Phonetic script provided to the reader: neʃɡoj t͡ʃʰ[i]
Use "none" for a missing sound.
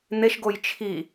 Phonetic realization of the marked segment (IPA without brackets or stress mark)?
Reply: i